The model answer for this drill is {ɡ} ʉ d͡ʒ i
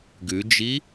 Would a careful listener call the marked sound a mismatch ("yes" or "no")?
no